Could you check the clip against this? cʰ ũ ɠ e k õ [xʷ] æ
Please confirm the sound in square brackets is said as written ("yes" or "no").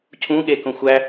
yes